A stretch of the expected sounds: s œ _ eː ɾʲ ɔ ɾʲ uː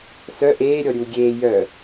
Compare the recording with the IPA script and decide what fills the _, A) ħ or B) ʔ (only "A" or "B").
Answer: B